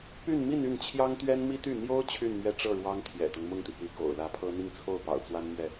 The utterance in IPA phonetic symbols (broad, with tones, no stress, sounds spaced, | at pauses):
p y˥˧ n m i˥˧ n y˥˩ n t͡ɕʰ j ɑ˥ ŋ t̪ ɥ ɛ˥ n m i˥ t̪ y˥˩ n̪ j o˥ ʊ̯ t͡ɕʰ y˥˧ n m ɥ ɛ˥˧ ʈ͡ʂ ɤ˥˩ ɻ w ɑ˥ ŋ t̪ʰ j ɛ̰˨˩ t̪ ɤ˦ ŋ m ʊ˥˩ ŋ t̪ i˩ p y˧˥ k o̰˨˩ ʊ̯ l ä˧˥ pʰ ɤ˥ n̪ i˥˧ ŋ t͡sʰ o˥˩ ʊ̯ p ɑ̰˨˩ ʊ̯ t͡s w a˥ n m ɥ ɛ˥˩